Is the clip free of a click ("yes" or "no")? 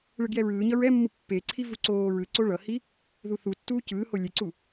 no